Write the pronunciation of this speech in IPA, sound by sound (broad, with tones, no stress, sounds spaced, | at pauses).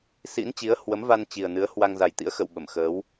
s ḭ˧˥ n t͡ɕ i˨˦ ə̯ h w ə˨˦ m v a˧ n t͡ɕ i˨˩ ə̯ n ɨ˨˦ ə̯ h w a˧ ŋ z a˨˩ j t̪ ḭ˧˥ ə̯ x ə̰˧˨ w ɓ ə˧˩ m x əː˨˦ w